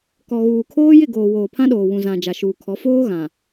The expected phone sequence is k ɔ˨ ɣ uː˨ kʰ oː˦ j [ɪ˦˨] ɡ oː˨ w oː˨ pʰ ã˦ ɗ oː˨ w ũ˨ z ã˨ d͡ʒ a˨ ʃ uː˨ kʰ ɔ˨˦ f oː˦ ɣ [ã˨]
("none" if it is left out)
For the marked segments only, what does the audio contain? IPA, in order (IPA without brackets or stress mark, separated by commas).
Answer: ɪ˦˨, ã˨